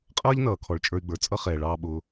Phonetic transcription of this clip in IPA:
qʼ ʌː˦ ʎ n ʌː˨ kʰ ɔ˨ ɭ t͡ʃʼ ə˞˧ y̯ ɡ͡b ə˞˨ t͡sʼ ʌ˦ χ ɛː˨ ɭ ɑː˧ ɓ ʊː˧

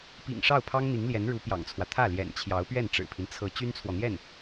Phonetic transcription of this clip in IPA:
p ḭ˨˩ ŋ ʂ ɑ˥˩ ʊ̯ pʰ ɑ˥ ŋ n̪ i˧˥ ŋ l j ɛ˧˥ n ɻ u˧˥ p j ɑ̰˨˩ ŋ t͡sʰ w ä˦ t̪ʰ ä˥˩ l j ɛ̰˨˩ n t͡ɕʰ j ɑ˧˥ ʊ̯ p ɥ ɛ˥˩ n ʈ͡ʂ ɻ̩˨˩ pʰ i˦ n t͡sʰ ɤ˧˥ t͡ɕ y˥ n t͡sʰ w ɔ˨ n̪ j ɛ˥˩ n

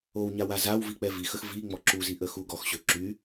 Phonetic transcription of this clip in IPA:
o w ɲ a w a z a w v i k͡p ɛ v i x ə x v i ŋ͡m ɔ ǁ u z i ʔ ə x u ɡ ɔ x ɕ ø ǁ y

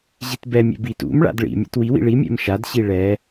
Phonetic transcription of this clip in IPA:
ʑ i t b ɛ mʲ ɛ̰ b i t ṵ m ɭ a̰ d ɭ ḭ mʲ a̰ t w i w ḭ ɭ i mʲ ɛ̰ m ʃ a d ɕ i ɭ ɛ

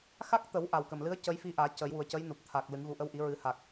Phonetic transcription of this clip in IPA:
x a˦˥ k̚ t̪ ə˨˩˦ w ʔ a˨˩ w k ə˨˩ m l ɨ˧˥ ə̯ c ə˧˥ j f i˧ ʔ aː˨˩˦ c ə˨˩˦ j w u˨˩ ə̯ c ə˧˥ j n u˨˩ p̚ t̪ʰ a˨˩ k̚ l ɨ˨˩˦ ŋ ɣ u˨˩ ʔ ə˧˥ w ʔ i˨˩˦ ɹ ɨ˨˩˦ h a˨˩ k̚

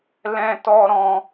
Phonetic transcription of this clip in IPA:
l ɛ̃˦ t ɔ˦ ɾ ɔ̃˦

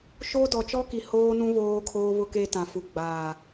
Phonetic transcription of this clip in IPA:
ʃ o˦ d ɔ˨ t͡ʃ ɔ˦ k i˨ h oː˦ n ũ˦ β oː˦ kʰ oː˦ β ʊ˦ k e˦ t ã˨ f u˨ ɡ͡b aː˨

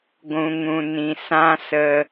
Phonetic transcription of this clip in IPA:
ɡʷ ũ˨ ŋ ũ˨ n ĩ˨ s ã˦ s ə˧

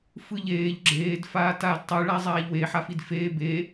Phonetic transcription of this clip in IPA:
f ɯ ʎ eː ʎ ɡ͡ǁ eː d f aː t aː d tˤ ɯ ɭ a zˤ aː ʎ w e ħ a f i d f eː b e

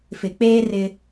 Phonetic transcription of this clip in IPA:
f ɪ˨ k͡p eː˦ r ɪ˦

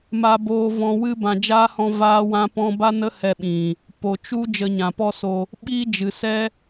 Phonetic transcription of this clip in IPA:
m a˧ b oː˧ v ɔ̃˧ w ɨ˧ b ã˨ d͡ʒ aː˦ h ɔ̃˧ v aː˧ w ã˧ p ɔ̃˧ b a˦ n ə˦ h ɛ˧ ɓ ĩ˨ | p o˨ t͡ʃ u˦ d͡ʒ ə˧ ɲ ã˨ p ɔ˦ s o˧ | ɓ iː˦ d͡ʒ ɨ˨ s ɛ˦

